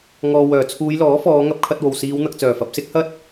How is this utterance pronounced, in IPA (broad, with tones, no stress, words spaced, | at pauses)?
ŋɔː˨wœː˨˩t͡sʰuː˨˧jlɔː˨˥ fɔː˨˧ŋɐ˧p̚kʰɐ˧t̚wo˨˩w siː˨˧wn̪ɐ˨k̚t͡sœː˨˩ fɐ˨p̚sɪ˥k̚hɐ˥t̚